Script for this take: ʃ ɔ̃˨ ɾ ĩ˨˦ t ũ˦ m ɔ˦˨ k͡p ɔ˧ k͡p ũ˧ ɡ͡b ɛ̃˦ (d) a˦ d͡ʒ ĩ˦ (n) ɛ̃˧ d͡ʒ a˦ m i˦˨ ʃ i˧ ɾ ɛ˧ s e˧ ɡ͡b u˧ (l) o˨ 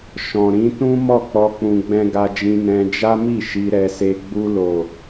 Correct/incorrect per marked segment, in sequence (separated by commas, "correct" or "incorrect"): incorrect, correct, correct